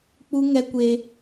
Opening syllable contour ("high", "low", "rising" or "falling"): high